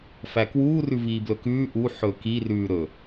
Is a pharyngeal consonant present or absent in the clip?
present